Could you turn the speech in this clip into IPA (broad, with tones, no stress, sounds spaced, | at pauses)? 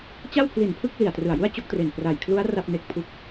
t͡ɕ a˥˩ w pʰ l i˨˩ n pʰ ɯ˥˩ k̚ l i˨˩ a̯ t r ɯ˨˩ a̯ j u˥˩ a̯ t͡ɕ o˥˩ k̚ t r e˨˩ n p r a˨˩ j kʰ l u˦˥ a̯ r a˥˩ p̚ n e˦˥ k̚ pʰ u˦˥ k̚